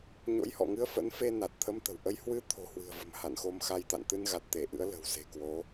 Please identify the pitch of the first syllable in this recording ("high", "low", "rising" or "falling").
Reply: rising